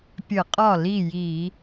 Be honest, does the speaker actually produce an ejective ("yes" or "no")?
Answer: yes